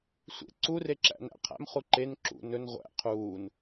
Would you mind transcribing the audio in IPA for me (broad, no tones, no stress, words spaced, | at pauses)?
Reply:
sʷḛ ǀureǁæ̰næ̰ qʰæ̰mχu ǃen ǁṵ nɵn ʁʷæ̰ qʰuːn